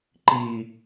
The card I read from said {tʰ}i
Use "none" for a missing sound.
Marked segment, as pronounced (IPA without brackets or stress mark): ǃ